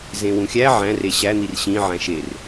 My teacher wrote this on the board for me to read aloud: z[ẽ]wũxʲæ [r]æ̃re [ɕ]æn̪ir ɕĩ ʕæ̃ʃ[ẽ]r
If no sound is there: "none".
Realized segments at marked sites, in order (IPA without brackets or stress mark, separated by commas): ẽ, ʕ, ɕ, e